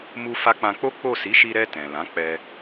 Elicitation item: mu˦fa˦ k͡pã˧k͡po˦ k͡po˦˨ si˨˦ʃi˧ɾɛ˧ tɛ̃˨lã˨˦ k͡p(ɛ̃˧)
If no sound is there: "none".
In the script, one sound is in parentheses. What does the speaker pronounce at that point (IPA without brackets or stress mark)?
ɛ˧